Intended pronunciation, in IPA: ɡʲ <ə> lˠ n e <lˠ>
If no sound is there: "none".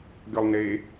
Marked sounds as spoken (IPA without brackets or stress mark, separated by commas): ɔ, none